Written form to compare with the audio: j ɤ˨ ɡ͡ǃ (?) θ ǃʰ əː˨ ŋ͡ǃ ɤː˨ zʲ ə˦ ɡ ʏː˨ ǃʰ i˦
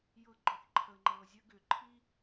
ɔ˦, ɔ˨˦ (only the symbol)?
ɔ˨˦